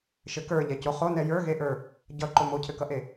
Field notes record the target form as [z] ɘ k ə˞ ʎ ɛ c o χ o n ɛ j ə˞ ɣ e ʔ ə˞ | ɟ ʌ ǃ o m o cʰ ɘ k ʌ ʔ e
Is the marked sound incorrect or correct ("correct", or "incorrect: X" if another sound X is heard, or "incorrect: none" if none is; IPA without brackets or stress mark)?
incorrect: ʃ